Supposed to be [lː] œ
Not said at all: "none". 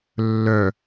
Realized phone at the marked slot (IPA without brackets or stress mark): lː